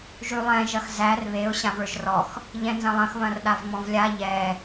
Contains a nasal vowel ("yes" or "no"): yes